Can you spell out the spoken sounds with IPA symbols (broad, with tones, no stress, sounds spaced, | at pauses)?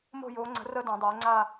m o̤˥˧ j oː˧˥ ŋ͡ǀ ə̤˧˥ r əː˥ d ũ˨˩˦ dˤ eː˩˥ ŋ͡ǀ a˥˧